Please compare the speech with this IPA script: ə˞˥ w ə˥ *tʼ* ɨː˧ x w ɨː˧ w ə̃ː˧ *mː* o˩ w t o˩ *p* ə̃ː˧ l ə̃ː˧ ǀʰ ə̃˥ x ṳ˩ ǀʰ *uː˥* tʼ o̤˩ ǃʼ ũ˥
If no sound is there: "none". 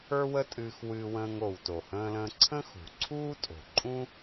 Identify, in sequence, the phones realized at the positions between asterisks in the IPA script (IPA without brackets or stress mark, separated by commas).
tʼ, ŋ, h, uː˥